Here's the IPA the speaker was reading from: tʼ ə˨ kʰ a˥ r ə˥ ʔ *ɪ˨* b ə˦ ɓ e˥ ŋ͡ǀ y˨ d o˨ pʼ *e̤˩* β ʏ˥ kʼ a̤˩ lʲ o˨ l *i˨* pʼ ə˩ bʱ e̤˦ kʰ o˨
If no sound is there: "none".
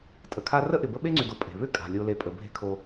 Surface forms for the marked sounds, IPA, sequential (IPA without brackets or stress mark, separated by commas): ɪ˨, e̤˩, e˨